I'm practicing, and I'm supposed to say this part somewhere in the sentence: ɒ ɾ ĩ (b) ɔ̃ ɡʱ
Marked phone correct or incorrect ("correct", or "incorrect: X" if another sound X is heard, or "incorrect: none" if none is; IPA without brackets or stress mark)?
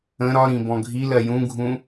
correct